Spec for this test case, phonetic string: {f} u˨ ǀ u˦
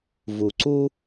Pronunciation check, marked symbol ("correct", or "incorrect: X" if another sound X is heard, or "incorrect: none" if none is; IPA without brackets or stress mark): incorrect: v